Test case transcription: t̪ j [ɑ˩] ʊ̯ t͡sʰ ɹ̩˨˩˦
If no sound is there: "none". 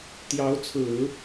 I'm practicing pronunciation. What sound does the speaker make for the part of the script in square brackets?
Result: ɑ˧˥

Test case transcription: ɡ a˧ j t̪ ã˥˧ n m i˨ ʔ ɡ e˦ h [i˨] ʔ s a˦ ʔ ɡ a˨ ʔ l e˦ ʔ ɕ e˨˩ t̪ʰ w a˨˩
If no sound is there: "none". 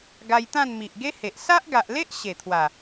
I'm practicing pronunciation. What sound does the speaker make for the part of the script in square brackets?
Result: e˨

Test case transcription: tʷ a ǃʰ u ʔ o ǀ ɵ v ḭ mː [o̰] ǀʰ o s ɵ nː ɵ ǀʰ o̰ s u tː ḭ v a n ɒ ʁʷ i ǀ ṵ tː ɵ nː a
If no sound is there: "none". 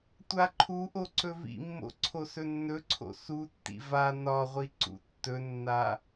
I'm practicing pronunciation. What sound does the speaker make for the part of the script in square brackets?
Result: o̰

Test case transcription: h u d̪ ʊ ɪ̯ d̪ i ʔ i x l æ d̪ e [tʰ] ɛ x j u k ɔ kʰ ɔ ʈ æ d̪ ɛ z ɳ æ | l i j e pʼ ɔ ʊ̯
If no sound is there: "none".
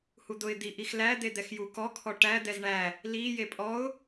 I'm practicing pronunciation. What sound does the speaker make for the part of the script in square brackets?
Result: d̪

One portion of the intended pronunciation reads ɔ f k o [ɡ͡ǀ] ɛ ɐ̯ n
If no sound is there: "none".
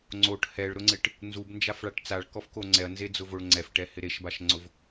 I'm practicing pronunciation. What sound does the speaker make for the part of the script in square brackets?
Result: ŋ͡ǀ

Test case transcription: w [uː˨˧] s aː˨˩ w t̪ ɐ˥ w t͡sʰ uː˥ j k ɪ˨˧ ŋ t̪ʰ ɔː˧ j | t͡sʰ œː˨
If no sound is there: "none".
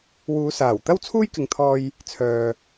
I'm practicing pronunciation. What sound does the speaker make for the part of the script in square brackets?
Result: uː˨˧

